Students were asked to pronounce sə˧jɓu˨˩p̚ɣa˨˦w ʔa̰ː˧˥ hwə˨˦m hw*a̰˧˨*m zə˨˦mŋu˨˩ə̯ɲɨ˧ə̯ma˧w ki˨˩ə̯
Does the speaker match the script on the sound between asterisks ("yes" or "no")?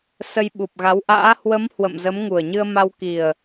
no